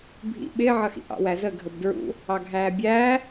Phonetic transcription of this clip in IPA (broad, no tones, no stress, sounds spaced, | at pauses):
bʱ ḭ ɓ ɪː ʕ ʌ x ḭ ʔ ɑ̰ w æ z ə ɡʱ ə b d ɹ ṵ | ɑ ɡʱ æː bʲ æː